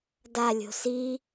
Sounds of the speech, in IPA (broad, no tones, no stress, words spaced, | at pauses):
dalʲo̤ si